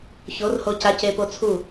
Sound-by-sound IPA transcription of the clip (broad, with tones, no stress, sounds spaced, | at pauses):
ç o˨˦ r h o˧ c a˧ c e˧ p o˧ t͡sʰ u˦˨